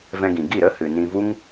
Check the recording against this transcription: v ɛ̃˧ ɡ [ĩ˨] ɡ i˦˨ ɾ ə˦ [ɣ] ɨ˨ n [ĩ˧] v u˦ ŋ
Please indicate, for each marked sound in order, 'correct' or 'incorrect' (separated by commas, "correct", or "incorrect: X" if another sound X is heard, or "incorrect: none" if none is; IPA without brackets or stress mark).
correct, incorrect: h, correct